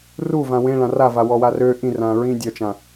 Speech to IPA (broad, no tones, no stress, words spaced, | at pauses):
ruvã wẽɭã ravawɔwa rø ʔĩrãɹĩ dʲœt͡ʃã